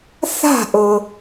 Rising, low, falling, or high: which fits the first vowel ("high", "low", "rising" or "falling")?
falling